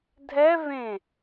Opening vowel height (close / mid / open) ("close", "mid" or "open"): mid